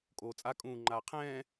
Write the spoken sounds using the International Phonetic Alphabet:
kʼ oː t͡sʼ a kʼ ũː ŋ͡ǃ aː qʰ ɛ̃ː

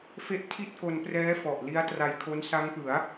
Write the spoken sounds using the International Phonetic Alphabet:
f e˦˥ ʔ tʰ i˥˩ t̚ k o˧ n p r ɛː˦˥ f ɔ˨˩ ʔ l i˦˥ a̯ t r a˧ j kʰ o˦˥ n s a˦˥ ŋ p ɯ˩˦ a̯

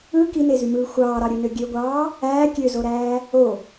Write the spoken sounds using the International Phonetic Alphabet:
ɯ k i n e z y m ɯː xʷ ɑː ɾ ɑ ɾʲ u n ø ɡʲ ø ɡʷ ɑː | æː kʲ ø z o ɾ æː | o

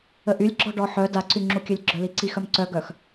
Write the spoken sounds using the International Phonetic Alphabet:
ə ʔ y lʲ ɡ͡ǁ ɔ ɖ ɔ ħ œ d a ǀ y ŋ͡ǁ u kʲ ø lʲ ɡ͡ǁ œ l i ǀ i x œ m ǀ œ ɡ œ x

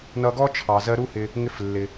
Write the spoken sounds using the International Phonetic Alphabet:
n ʌ˧ ɡ ɔ˥ t͡ʃʰ ɑ˩ z ɜ˧ ɾ u˥ h ɪ˧ | ŋ ɪ˧ f lː ɪ˩

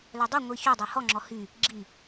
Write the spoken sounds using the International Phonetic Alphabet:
l œ dˤ o ŋʷ i ç ɵ dˤ o h ɔ ŋ͡ǁ ɔ h y | ɡ͡ǁ i

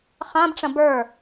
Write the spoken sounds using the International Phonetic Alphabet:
χ ã b ʈ͡ʂ ɐ̃ b ə˞

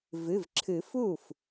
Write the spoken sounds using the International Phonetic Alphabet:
v ɨ˩˧˩ v ǁʰ ɨ˨˩˦ f u˥˩ f

